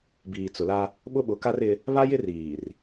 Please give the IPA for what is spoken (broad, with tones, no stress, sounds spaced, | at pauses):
b iː˨ t͡s ʊ˨ l a˦ | ɓ ʊ˦ ɓ ʊ˨˦ k a˦ r ɪ˦ | β a˦ j ɪ˦ r iː˨ r